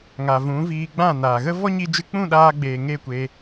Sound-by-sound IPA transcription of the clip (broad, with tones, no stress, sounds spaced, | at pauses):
ŋ a˨ v ũ˨˦ v iː˧ ɡ͡b ã˦˨ n aː˨ ɣ ə˦ v ɔ˦ ɲ i˧ d͡ʒ ɨ˧ k͡p ũ˦˨ ɗ aː˧ ɡ͡b eː˨ ŋ e˦˨ kʷ e˧